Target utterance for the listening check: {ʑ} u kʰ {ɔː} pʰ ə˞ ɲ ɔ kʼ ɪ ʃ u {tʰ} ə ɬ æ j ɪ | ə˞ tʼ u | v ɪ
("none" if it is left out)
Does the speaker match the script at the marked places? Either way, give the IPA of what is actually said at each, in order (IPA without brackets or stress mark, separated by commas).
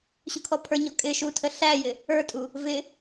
ɕ, ɔ, tʰ